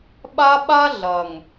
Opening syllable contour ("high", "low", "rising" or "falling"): high